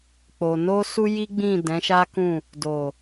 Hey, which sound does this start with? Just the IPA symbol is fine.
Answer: k͡p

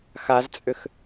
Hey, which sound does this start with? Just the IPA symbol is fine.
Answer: x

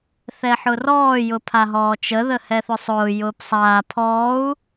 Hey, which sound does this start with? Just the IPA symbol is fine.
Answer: θ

